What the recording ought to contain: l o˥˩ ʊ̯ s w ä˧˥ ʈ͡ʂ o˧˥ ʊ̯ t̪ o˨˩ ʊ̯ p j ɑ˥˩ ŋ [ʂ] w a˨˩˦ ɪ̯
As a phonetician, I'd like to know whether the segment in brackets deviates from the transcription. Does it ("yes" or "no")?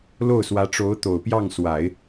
yes